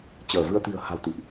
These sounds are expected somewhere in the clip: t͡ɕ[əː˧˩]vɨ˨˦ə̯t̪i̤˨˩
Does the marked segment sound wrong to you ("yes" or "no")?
no